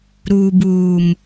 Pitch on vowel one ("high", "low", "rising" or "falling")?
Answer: low